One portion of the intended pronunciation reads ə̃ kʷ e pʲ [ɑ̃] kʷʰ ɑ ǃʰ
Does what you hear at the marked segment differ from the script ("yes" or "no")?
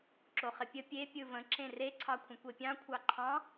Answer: no